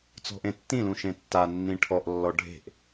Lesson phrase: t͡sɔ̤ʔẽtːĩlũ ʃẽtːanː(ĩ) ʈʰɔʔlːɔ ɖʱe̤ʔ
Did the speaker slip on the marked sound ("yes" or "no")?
no